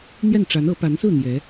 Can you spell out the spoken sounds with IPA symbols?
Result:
n̪ j ɛ˥˩ n ʈ͡ʂ a˧˥ n ɤ˧˥ p a˧˥ n s ɹ̩˥˩ n̪ j ɛ˧˥

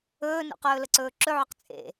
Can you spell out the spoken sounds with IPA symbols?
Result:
ɵː n ṵ q ɵː l ə ǀ ɵː ǁ ɵ ʕ ʊ q t͡sʼ ḛ

